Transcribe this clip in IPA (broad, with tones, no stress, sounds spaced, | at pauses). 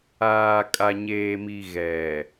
aː˨ kʼ a˨ ɲ eː˨ m i˨ ɣ ɛ˨